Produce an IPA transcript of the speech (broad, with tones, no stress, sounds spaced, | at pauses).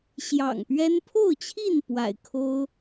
ɕ j ɑ̰˨˩ ŋ p ɥ ɛ˦ n pʰ o˥˨ ʊ̯ t͡ɕʰ i˥˨ n p w a̰˨˩ ɪ̯ kʰ o˦ ʊ̯